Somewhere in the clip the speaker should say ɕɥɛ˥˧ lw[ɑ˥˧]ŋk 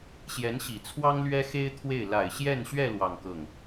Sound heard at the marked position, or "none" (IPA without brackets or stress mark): ɑ˥˧